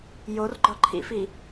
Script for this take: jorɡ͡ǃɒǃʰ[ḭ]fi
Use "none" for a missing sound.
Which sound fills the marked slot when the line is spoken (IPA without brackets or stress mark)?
ḭ